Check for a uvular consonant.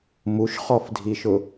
present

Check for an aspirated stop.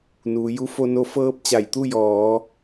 absent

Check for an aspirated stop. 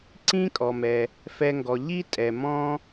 absent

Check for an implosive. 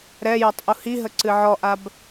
absent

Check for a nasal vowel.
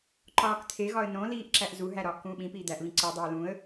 present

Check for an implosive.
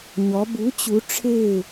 absent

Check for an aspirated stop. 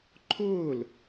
present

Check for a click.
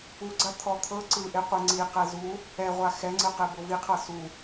present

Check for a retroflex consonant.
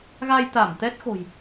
absent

